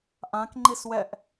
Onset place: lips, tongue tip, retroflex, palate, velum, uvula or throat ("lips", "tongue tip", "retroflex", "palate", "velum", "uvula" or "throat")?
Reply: throat